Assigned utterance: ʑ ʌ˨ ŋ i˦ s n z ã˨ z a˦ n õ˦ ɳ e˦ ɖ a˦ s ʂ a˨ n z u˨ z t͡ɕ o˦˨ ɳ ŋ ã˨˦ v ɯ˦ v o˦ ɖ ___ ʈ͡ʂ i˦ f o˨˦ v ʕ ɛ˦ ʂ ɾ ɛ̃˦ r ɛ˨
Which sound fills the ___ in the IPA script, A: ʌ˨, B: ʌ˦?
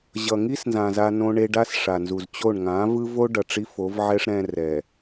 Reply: A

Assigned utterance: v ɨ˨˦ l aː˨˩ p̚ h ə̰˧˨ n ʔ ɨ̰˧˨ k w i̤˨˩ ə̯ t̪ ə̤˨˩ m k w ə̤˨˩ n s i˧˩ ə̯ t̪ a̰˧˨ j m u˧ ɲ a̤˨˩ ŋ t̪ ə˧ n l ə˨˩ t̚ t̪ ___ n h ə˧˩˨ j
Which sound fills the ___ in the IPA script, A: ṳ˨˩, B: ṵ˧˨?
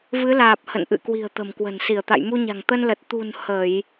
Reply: A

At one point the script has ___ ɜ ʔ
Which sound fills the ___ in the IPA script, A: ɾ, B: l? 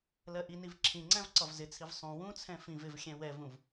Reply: B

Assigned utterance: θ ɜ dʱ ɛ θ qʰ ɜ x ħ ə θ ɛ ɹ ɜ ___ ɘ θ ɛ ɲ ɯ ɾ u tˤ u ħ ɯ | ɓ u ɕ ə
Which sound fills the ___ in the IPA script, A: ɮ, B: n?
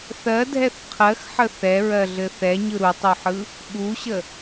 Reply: A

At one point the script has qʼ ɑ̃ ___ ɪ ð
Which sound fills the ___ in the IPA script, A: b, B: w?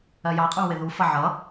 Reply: B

